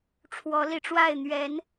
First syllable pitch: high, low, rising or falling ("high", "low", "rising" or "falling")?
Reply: rising